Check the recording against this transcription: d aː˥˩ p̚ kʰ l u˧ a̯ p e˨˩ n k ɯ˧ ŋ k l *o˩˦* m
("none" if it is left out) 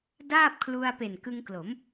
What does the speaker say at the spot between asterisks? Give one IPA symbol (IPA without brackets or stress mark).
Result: o˩˦